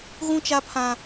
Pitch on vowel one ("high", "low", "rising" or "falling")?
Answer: high